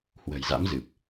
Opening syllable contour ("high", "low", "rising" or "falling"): low